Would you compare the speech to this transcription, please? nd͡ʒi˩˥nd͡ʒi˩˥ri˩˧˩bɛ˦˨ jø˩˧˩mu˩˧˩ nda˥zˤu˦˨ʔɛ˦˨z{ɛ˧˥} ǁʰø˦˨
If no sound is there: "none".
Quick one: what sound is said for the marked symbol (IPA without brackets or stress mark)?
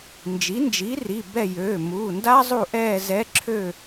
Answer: ɛ˧˥